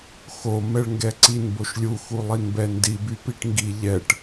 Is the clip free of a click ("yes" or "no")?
no